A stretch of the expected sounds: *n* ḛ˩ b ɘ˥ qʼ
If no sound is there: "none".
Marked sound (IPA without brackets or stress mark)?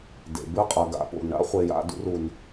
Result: d